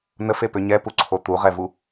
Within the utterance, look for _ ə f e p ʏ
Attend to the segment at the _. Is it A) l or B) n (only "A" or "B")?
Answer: B